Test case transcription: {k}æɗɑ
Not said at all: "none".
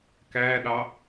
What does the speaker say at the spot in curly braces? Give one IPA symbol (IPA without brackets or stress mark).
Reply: k